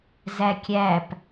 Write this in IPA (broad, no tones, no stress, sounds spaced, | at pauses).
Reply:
z æ kʲ æ p